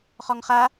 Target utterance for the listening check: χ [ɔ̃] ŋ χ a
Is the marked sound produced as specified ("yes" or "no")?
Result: no